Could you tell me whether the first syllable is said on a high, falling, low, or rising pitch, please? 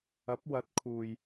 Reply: rising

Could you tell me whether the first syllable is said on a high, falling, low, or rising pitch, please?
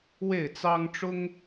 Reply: falling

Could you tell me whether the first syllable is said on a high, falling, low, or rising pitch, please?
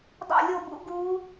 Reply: falling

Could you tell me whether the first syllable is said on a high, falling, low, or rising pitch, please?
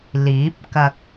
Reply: rising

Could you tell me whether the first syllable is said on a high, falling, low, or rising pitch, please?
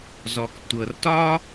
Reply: low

